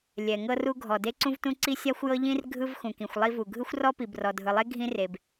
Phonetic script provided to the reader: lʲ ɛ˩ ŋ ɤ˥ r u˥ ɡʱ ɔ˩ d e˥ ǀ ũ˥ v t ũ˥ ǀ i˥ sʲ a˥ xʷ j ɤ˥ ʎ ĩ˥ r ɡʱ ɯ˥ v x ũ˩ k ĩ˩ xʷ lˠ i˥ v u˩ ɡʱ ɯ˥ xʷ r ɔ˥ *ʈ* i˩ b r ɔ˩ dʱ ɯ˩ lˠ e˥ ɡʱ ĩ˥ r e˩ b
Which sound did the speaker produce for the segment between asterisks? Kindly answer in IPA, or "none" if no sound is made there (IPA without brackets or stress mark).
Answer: p